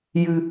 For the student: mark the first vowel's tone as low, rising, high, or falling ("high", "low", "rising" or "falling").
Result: low